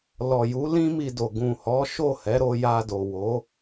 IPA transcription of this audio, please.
lɔ˨ju˨˦ lĩ˦mi˧do˨ ɡũ˨hɔ˨˦ ʃo˦˨hɛ˨˦ɾo˧ja˧ do˨wo˨˦

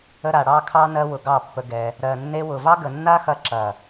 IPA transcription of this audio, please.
ə˧ɾa˨ ɽɑ˧kʰɑ˧ nɜ˧wʊ˨ ɡɑ˦˨pːə˧ɡɛ˧ | ɾɜ˨nːe˧wʊ˨vɑ˦ ɡə˨nːa˦xɐ˧ ǁɐ˨

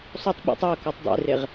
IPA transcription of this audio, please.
sˤotˤ ɓṵtˤ eʊ̯ kotˤdˤḛreʁ

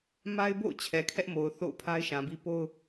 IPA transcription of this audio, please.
ma˦ɪ̯bo̰˦˨ʊ̯ t͡ɕʰɛ˨kʰɛ˦ʔmo˨ʊ̯ θo̰˦˨ʊ̯pʰa˦ɪ̯ʃã˨bi˦ po˦ʊ̯

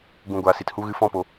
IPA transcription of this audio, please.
ɡũ˧ ɡʷaː˧si˧thu˦ɣɨ˦ fɔ̃˦po˧

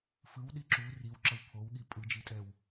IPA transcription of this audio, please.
fɯwɗi ǁu riwǁʌw pʰowɠi pʼɯd͡ʒitʼɛw

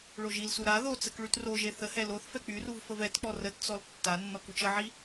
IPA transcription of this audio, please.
ɭoʒilsu ɾa ðot͡sək ɭytroʒe θəhɛ loθfɛ k͡pyruv fəvɛtk͡pɔ rətt͡sɔl tːanːɔ kut͡ʃəʕi

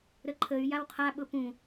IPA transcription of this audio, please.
ɾəǃʰəy̯ jawqʰa ɓʊpũ

